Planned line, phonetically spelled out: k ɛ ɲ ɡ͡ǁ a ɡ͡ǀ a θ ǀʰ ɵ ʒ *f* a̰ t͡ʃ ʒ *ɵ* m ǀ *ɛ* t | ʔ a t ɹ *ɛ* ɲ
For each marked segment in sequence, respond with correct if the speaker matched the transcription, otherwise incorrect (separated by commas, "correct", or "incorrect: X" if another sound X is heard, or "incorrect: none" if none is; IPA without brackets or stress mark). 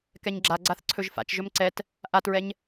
correct, correct, correct, correct